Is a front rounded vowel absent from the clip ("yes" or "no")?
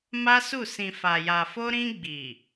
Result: yes